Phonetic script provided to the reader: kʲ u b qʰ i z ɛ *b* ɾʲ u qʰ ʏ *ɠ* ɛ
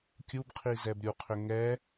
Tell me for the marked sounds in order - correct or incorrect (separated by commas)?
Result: correct, incorrect